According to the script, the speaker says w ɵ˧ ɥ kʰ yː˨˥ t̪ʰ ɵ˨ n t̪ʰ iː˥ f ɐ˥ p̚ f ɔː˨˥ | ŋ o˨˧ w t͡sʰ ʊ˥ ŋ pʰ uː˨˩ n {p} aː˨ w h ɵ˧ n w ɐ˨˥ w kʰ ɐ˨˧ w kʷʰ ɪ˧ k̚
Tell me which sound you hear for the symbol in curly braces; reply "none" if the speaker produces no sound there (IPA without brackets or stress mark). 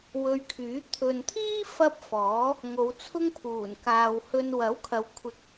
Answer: k